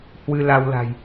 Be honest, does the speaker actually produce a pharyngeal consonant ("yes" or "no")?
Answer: no